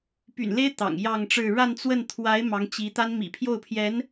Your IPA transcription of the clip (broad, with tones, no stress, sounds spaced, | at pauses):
p y̰˨˩ n l e˥ ɪ̯ t̪ ɑ̰˨˩ ŋ j ɑ˥˧ ŋ ʈ͡ʂ ɻ̩˥˧ ɻ a˥˧ n t͡s w ə˥˩ n t̪ʰ w a˧˥ ɪ̯ m ɑ˧˥ ŋ t͡ɕ i˧˥ t̪ a˥ n m ḭ˨˩ pʰ j o˥˩ ʊ̯ pʰ j ɛ˧˥ n